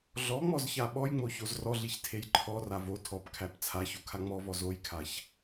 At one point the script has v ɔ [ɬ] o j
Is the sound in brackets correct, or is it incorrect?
incorrect